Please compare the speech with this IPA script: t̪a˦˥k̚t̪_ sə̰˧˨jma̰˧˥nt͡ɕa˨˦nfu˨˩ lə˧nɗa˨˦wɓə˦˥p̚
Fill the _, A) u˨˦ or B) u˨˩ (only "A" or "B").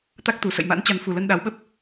B